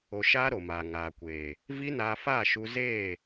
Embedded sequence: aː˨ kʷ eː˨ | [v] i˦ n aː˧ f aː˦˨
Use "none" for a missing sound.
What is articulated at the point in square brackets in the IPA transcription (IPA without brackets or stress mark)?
v